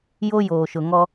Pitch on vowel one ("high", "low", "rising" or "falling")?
high